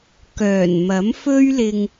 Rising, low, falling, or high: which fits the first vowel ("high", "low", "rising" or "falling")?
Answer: low